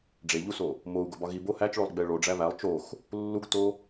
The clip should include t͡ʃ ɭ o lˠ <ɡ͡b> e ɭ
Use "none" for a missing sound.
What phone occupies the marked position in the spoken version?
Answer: ɡ͡b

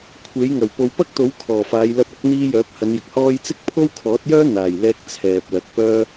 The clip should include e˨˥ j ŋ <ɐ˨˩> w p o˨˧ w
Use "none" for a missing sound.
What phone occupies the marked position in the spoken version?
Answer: ɐ˨˩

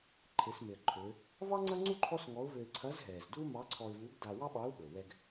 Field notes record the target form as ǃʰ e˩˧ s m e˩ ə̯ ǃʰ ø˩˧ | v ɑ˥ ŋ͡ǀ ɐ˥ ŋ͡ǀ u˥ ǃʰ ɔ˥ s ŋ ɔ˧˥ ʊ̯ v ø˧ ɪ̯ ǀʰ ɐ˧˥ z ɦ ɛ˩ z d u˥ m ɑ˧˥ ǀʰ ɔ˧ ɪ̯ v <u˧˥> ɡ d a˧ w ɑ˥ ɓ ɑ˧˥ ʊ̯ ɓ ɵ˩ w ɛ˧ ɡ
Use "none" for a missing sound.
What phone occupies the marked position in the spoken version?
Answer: u˧˥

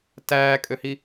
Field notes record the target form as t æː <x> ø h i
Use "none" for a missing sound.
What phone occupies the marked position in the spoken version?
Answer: kʼ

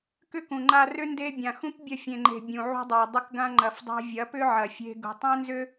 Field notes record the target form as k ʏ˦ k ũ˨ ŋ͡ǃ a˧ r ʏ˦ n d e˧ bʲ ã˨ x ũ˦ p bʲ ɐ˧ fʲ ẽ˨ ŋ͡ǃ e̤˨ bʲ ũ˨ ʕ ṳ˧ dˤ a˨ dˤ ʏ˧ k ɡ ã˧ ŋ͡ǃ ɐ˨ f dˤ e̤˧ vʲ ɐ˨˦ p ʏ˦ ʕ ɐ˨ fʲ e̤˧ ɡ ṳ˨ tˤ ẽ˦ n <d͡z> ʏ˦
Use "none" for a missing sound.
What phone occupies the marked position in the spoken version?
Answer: z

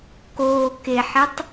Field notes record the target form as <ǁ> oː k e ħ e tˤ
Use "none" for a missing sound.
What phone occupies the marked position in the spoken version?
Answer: k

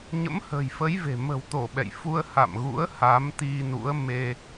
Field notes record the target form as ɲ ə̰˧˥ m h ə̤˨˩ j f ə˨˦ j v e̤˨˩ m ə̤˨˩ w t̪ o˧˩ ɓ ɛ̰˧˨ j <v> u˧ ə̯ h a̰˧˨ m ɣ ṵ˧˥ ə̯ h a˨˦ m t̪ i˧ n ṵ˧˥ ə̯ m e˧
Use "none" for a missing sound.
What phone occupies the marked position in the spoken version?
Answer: f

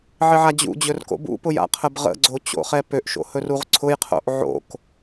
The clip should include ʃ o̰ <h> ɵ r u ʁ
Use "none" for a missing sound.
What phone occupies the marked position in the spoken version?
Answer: h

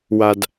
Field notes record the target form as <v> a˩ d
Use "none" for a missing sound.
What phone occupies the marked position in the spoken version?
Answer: w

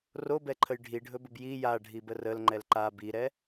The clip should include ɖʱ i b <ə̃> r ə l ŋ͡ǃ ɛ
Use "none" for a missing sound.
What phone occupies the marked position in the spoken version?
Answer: ə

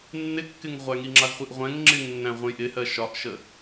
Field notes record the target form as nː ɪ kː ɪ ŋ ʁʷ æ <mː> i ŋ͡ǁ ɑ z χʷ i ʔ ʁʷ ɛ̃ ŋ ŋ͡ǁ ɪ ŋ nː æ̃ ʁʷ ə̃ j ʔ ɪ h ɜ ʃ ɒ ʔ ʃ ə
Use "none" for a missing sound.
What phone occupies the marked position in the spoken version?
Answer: ŋ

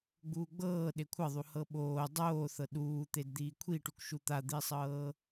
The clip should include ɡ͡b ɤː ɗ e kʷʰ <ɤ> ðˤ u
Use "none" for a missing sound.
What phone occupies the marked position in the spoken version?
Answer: ɤ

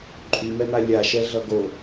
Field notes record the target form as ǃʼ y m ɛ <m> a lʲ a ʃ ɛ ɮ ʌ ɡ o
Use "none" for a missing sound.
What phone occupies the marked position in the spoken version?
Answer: m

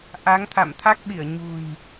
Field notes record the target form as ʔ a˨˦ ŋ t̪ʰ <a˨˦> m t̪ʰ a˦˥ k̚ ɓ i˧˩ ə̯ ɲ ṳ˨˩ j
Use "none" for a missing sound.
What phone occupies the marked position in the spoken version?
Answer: a̰˧˨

